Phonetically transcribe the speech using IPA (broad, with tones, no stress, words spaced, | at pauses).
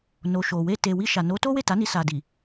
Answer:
no˨ʃo˨we˧ te˨ wi˧ʃa˨ no˨˦to˦we˦˨ ta˨˦ni˧sa˨di˨